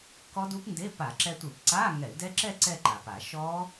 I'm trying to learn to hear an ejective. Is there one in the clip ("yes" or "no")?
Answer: no